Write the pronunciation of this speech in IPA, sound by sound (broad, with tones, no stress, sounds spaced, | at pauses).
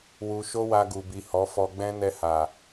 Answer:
w u˧ ʃ o˦ w a˧ ɡ u˨ b i˨ h ɔ˨˦ f ɔ˧ ɡ͡b ɛ̃˦ n ɛ˧ h a˨